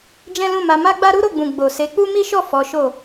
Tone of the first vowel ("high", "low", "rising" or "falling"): high